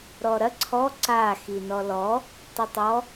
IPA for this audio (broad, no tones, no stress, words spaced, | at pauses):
ɾɔɾɐ ǀʰɔ ǀa xinɔlɔ | tˤitˤɔ